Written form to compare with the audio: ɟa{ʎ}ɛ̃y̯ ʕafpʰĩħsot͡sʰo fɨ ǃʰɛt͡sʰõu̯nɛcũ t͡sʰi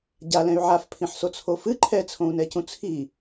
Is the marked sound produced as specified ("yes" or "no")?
no